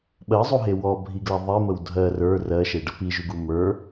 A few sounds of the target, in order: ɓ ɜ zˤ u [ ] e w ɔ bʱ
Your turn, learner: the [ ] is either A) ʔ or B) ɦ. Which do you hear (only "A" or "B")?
B